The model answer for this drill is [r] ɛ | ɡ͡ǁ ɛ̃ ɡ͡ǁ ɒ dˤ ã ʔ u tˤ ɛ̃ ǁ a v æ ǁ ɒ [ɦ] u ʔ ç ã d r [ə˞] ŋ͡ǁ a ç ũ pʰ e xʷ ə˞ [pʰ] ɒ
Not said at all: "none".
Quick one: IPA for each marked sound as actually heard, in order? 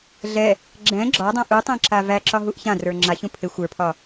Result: ɮ, ɦ, ə˞, pʰ

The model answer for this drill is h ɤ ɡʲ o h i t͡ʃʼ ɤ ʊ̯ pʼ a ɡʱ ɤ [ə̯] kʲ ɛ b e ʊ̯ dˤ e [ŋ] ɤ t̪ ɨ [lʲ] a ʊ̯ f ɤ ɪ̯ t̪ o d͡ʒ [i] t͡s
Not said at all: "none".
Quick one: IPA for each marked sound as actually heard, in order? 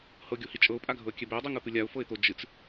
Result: ə̯, ŋ, lʲ, ɨ

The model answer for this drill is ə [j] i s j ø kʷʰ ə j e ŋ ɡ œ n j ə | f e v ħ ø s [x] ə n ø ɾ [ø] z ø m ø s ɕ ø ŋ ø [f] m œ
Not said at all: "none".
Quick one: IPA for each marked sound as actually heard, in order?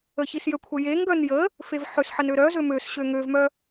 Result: ç, ħ, œ, v

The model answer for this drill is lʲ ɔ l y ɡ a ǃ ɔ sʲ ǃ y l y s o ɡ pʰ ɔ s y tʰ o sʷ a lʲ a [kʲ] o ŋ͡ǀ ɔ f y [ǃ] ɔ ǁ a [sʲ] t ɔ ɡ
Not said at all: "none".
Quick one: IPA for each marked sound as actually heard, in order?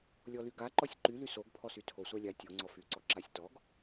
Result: tʲ, ǀ, sʲ

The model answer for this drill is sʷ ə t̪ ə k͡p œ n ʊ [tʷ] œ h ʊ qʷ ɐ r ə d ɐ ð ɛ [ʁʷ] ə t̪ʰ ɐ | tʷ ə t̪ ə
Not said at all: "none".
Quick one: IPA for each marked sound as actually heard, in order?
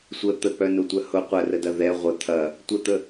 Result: tʷ, ʁʷ

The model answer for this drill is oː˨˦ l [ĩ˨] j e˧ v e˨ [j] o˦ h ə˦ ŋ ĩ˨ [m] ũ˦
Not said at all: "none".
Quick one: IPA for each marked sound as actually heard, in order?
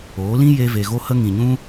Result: ĩ˦, ɣ, ɲ

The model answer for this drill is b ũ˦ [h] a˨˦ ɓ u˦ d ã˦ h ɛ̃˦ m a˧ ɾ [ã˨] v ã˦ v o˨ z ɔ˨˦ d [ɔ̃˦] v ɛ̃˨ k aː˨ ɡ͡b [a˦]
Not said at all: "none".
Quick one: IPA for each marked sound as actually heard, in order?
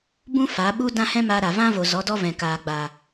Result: f, a˨, ɔ˦, a˨

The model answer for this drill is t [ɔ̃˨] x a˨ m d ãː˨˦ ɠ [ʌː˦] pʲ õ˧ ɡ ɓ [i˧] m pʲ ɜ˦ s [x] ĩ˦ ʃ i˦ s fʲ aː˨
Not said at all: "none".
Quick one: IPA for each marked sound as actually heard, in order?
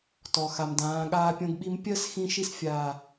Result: ɔ˨, aː˦, i˧, x

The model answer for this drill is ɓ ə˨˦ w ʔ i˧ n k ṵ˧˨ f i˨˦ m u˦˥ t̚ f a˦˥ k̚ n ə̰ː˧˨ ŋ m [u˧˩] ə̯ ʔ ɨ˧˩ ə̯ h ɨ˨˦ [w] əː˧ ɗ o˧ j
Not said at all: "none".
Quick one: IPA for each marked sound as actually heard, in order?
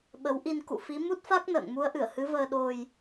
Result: u˨˦, v

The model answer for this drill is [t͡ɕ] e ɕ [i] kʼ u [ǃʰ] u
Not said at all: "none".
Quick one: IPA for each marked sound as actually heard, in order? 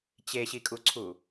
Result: t͡ɕ, i, ǀʰ

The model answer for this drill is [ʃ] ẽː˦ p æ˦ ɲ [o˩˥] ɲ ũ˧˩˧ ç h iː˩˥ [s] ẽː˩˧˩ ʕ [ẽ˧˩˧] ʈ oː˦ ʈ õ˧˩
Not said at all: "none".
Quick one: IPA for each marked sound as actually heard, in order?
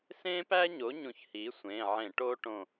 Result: s, o˩˥, sʷ, ẽ˧˩˧

